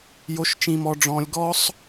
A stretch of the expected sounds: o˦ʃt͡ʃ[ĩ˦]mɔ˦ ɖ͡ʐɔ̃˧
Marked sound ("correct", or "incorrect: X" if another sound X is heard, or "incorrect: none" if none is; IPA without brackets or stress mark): correct